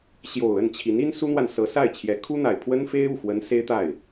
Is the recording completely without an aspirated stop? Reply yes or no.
no